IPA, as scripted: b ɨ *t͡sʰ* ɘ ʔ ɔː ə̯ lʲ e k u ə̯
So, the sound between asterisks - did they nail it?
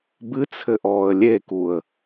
yes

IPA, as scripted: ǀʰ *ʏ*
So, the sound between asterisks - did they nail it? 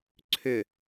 yes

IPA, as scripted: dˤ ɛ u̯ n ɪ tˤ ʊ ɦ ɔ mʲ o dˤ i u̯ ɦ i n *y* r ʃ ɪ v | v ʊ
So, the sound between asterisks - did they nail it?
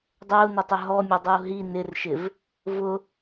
no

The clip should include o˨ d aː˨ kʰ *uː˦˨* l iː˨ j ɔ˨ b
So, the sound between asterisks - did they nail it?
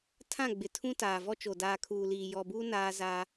no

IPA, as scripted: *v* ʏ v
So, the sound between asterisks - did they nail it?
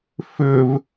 no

